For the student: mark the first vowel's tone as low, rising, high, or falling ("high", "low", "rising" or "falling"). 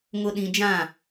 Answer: low